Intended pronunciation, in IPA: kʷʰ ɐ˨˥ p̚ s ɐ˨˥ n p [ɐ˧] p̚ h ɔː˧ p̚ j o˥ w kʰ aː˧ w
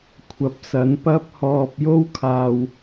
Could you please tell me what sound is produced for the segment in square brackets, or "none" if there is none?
ɐ˥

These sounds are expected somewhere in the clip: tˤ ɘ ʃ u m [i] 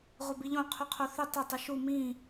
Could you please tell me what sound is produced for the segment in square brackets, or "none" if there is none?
ĩ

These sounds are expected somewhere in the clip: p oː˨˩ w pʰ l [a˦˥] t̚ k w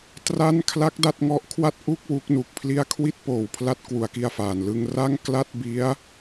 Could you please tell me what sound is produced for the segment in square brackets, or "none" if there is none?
a˦˥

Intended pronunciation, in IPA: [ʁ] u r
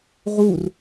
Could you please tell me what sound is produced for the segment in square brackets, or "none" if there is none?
ʁ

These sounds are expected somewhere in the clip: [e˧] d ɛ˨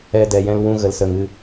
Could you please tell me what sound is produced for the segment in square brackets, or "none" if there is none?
ɛ˧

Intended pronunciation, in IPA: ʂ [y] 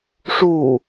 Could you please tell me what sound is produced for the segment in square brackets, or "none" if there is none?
u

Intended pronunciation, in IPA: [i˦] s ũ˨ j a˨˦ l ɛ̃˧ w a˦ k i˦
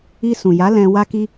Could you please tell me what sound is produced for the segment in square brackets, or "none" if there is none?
i˧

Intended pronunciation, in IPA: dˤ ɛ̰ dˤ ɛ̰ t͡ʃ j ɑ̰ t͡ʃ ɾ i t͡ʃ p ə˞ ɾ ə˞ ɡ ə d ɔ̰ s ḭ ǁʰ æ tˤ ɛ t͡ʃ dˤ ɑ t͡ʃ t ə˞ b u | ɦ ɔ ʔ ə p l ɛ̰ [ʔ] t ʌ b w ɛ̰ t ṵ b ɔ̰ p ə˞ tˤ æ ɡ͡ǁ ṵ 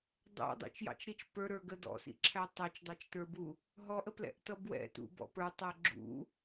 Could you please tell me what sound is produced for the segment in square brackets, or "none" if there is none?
ʔ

